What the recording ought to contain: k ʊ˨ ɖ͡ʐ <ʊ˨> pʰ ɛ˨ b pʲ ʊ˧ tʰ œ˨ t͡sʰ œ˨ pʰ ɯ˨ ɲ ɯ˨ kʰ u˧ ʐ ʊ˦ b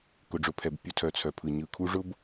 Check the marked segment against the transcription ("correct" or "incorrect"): correct